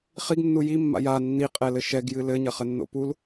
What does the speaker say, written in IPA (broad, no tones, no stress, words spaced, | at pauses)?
χiɡnːu jimːa̰ ja nːiqʼɛlɘ ʃɛɡjɨ lɘɲɐχɘnːo̰ pul